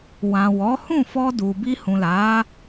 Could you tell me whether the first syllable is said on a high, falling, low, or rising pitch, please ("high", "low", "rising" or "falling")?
low